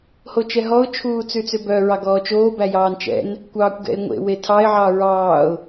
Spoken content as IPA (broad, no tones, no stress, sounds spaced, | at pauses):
h o t͡ʃ ɛ ɦ ɔ ʊ̯ t͡ʃʰ uː t͡s ʉ t͡s ø b œ ɹ ɑ ɡ ɔː t͡ʃ oː b æ j ɑː n t͡ʃ ɛ̰ n | kʷ ɑː kʷ ɡ ɛ̰ ɪ̯ ŋʷ ḛ w e tʰ ɑ ɪ̯ ʕ ɑ ɹ ɑː ʊ̯